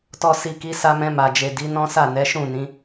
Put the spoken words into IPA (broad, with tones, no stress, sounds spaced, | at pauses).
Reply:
t ɔ˨ s i˨ k i˨˦ s a˧ m ɛ̃˧ m a˨ d͡ʒ e˨ d i˨˦ n ɔ̃˦ s a˦˨ n ɛ˨˦ ʃ ũ˦˨ n ĩ˨˦